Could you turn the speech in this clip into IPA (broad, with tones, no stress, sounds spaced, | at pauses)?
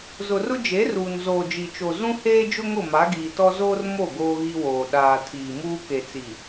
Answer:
z ʊ˨ r ʊ˦ d͡ʒ e˨˦ r uː˨ n z oː˨ d͡ʒ i˨ t͡ʃ o˨ z ũ˦ h eː˦ d͡ʒ ʊ˦ ŋ ʊ˦˨ m a˨˦ ɡ iː˨ t ɔ˦ z oː˦ r m o˦˨ ɡ oː˦ ɣ i˦ w oː˨ ɗ aː˨ tʰ iː˨ m uː˦ k e˨ t͡s i˨